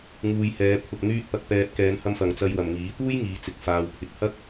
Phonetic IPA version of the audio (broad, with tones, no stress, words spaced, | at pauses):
ŋuː˨jhɛː˨˧ pʰʊ˨k̚ n̪yː˧t̚ pɐ˧k̚pɛː˧p̚ kɛː˨˧nhɐ˧mfɐ˨ŋ t͡sɐ˧jwɐ˨mŋiː˨˥ t̪uː˥jŋiː˨˧t͡sɪ˨k̚ faː˨wpʰɪ˨k̚hɐ˥k̚